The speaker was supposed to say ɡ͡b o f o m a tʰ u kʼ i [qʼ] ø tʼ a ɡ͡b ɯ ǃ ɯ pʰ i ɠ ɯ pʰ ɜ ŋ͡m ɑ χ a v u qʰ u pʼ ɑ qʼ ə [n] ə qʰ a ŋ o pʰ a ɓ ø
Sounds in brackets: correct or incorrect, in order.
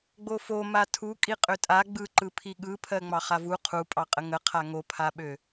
correct, incorrect

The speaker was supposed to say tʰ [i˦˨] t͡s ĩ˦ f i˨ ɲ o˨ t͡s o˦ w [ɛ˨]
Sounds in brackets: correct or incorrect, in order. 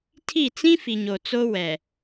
correct, correct

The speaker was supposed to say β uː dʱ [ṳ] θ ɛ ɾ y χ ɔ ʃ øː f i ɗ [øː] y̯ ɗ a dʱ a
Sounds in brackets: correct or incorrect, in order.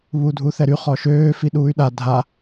incorrect, incorrect

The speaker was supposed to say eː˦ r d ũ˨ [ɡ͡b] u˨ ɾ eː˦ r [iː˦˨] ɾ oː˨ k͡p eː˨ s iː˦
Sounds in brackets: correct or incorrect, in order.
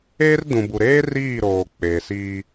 incorrect, correct

